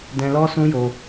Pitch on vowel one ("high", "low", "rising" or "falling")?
high